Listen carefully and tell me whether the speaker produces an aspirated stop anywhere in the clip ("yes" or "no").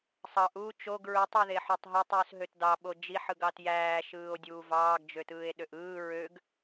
no